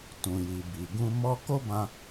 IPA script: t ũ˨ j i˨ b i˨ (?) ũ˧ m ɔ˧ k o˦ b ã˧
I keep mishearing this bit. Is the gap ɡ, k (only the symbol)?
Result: ɡ